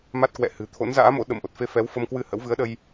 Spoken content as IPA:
m a˦˥ t̚ k w ɛ̰˧˨ h ɨ̤˨˩ t̪ʰ o̰˧˥ n z a̰ː˧˥ m o̰˧˥ ɗ ə̰˧˨ m ʔ o˨˩ t̚ f e˧ f ɛ˨˦ w f ə˧ m k w ɨ˧ h ə̰˧˥ w v ɨ˨˦ ə̯ ɗ ə˧ j

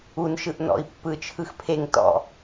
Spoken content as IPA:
u n ʃ ɯ ʔ n ɔ̰ i̯ pː ɯ t͡ʃʰ ɯ x pʰ e ŋ t ɔ̰

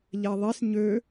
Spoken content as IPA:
ʎ ɛ ðˤ e s ɲ ø

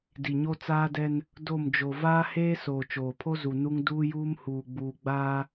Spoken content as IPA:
d i˨ ɲ o˦ t͡s aː˦ d ɛ˦ n | d o˦˨ m d͡ʒ o˨ v aː˦ h eː˦ s oː˨ t͡ʃ oː˨ pʰ o˦ z u˨ n u˦ ŋ d uː˦ j uː˦ m h uː˨ ɡ͡b uː˨ ɡ͡b aː˦

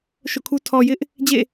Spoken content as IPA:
ʃ o̰˦˨ kʰ u˦ tʰ ɔ˨ j ɪ˦ ʔ | d͡ʑ ḛ˦˨

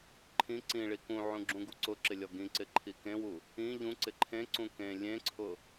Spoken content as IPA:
ǃʰ ĩ ǀ ĩ ɭ i k ũ ʕ ũ ɡ͡ǁ ũ ɡ u ǀ ʊ ǁ ɪ lʲ ɔ ɡ ĩ ǀ ɪ ǃʰ i k ẽ w u | ĩ ʎ ũ ǀ ɪ ǃʰ ẽ ǀ ũ k ẽ lʲ ẽ ǀʰ ʊ

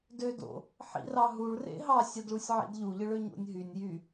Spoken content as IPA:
d ø d o̰ | ħ ḭ r ɑ ɦ u ɭ r ḛ ɦ ɑ sʲ æ d ɭ u sʲ ʕ ḭ d ʎ u ʎ ɯ ɭ ø ɲ o̰ nʲ ɦ y nʲ j y

